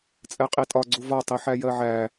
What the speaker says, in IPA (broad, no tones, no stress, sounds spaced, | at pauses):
t͡sʼ ɛ qʼ i tʼ ɒ ɡ͡ǀ u v ɒ tˤ i ħ æ j ɜ ʕ æ